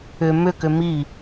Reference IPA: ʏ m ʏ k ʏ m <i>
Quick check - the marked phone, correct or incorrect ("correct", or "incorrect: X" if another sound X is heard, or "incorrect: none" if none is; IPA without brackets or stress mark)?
correct